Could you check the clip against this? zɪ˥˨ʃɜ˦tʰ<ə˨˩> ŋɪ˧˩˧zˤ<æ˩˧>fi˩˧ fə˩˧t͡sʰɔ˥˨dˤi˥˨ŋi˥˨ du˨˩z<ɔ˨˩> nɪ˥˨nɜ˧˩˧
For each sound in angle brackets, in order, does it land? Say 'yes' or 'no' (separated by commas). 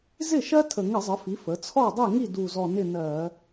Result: yes, no, yes